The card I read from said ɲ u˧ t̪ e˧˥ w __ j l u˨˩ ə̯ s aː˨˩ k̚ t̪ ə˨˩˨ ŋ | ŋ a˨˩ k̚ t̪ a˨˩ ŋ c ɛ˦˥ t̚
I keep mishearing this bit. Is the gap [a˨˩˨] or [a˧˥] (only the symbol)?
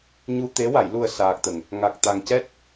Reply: a˨˩˨